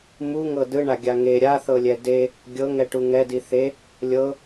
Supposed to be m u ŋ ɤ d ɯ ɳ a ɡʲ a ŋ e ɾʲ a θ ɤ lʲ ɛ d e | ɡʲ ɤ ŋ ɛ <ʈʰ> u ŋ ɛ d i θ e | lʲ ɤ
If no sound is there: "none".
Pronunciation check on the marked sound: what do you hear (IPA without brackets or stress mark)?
ʈ